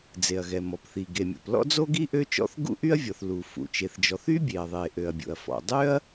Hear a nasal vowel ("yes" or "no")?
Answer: no